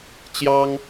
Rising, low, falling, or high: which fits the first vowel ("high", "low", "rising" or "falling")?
high